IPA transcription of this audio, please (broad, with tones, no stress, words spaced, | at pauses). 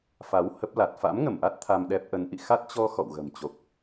fa˨˦whə˦˥p̚la˨˩t̚ fa̰˧˥mŋə˧˩mʔa˦˥t̚ t̪ʰa˧mɗɛ˦˥p̚ ʔə˨˦nʔḭ˧˨ xa˦˥t̚t͡ɕɔ˧ xɔ̰˧˨wɣə̤˨˩mt͡ɕo˨˩k̚